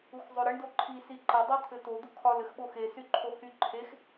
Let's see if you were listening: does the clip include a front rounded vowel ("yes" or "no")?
yes